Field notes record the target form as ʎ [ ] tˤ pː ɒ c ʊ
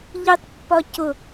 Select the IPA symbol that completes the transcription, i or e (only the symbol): i